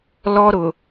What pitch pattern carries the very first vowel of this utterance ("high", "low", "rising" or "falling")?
high